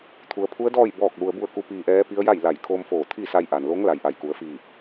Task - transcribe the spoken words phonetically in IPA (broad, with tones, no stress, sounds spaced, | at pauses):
t̪ʰ u˩˧ ə̯ pʰ u˧˥ ə̯ d ɔː˥˨ j b ɔː˥˨ k̚ l u˧ ə̯ b u˥˨ ə̯ k u˧˥ p iː˧ ʔ ɛː˧˥ p i˧˥ ə̯ j a˥˨ j l a˧˩ j kʰ oː˧ m f oː˧˩ t̪ʰ i˥˨ s a˧ j ʔ a˩ n l o˧˥ ŋ l a˩˧ j ʔ a˩ j k u˩˧ ə̯ f iː˧˩ p̚